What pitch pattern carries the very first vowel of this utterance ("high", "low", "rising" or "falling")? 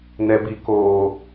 high